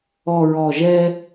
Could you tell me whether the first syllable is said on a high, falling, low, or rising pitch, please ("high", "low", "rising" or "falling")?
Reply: low